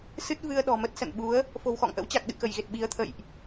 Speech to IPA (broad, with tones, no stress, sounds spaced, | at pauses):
s ɨ˦˥ t̚ v ɨ˧ ə̯ ɗ ɔ̤˨˩ m ə˦˥ t̚ s ə̰˧˨ n ɓ u˨˦ ə̯ | f o̤˨˩ w x ɔ̰˧˨ ŋ ʔ ə̰˧˥ w t͡ɕ a˨˩ k̚ ɗ ɨ̰˧˨ k ə˧˩ j ɣ e˨˩ t̚ ɓ i˨˦ ə̯ t̪ʰ ə̰˧˨ j ʔ